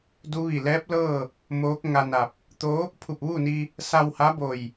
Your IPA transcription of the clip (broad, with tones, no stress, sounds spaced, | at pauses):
d u˧˥ ʋ i˧˩ l ɛː˧˥ p̚ l ɤː˥˨ | m oː˧˥ k̚ ŋ a˧ n a˧˩ p̚ | t̪ o˧˥ | pʰ u˧˩ p̚ ʋ uː˥˨ n i˧ | s a˧ w h a˧˥ b o˧˩ j